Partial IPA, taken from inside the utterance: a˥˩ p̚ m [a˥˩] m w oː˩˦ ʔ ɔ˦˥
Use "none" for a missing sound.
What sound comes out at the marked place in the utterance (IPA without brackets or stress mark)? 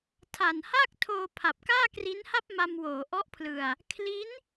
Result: a˧